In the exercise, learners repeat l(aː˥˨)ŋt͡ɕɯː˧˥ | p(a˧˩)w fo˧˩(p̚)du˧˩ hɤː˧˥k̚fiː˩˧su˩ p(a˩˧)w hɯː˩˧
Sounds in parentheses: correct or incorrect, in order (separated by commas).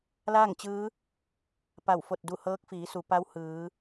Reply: correct, correct, incorrect, incorrect